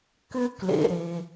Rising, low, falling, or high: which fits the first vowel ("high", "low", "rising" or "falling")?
high